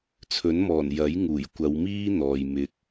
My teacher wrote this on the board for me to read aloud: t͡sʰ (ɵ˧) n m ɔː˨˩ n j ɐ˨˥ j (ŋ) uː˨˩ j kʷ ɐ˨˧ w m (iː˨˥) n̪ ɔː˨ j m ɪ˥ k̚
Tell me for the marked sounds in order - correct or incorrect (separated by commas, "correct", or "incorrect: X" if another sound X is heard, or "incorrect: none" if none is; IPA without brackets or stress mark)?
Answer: incorrect: ɵ˨˥, correct, incorrect: iː˥